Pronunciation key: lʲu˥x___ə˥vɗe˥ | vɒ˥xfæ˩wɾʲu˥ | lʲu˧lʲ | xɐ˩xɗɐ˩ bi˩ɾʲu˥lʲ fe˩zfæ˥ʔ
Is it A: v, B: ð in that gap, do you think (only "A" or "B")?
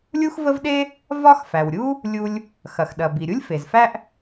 A